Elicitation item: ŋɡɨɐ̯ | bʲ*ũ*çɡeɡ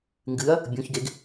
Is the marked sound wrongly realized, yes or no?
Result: no